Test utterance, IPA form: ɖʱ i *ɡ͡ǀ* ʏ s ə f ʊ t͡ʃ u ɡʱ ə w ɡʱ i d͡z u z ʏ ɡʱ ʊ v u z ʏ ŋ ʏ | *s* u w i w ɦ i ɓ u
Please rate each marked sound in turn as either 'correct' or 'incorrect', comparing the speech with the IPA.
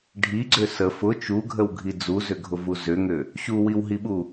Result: correct, incorrect

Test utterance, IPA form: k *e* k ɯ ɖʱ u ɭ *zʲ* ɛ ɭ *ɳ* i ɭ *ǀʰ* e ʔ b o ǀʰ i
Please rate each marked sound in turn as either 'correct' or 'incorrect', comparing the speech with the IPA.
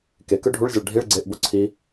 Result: correct, correct, incorrect, incorrect

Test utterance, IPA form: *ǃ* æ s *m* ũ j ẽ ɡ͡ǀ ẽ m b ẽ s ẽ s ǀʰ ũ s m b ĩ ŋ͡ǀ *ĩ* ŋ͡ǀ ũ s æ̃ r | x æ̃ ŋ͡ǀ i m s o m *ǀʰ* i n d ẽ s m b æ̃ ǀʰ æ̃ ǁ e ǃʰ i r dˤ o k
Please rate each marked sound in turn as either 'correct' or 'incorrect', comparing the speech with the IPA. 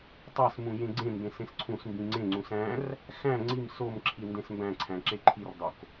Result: incorrect, correct, incorrect, incorrect

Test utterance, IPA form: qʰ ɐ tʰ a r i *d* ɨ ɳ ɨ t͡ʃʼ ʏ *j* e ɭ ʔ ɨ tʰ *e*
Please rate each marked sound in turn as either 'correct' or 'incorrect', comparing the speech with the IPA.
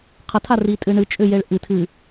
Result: incorrect, correct, incorrect

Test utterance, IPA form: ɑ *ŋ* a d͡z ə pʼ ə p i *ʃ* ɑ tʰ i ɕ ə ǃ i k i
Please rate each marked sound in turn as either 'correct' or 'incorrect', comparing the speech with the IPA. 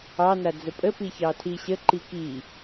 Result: incorrect, incorrect

